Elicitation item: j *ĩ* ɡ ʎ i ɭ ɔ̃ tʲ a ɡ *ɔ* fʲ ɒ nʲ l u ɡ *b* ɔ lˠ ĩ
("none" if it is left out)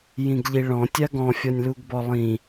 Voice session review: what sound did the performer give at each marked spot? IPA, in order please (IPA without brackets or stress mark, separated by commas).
ĩ, ɔ̃, b